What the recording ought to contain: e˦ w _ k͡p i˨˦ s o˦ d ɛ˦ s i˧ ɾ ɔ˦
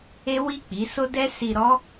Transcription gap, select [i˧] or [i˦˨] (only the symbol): i˦˨